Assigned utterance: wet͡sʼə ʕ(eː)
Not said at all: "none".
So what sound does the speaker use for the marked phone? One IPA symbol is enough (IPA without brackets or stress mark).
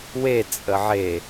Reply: e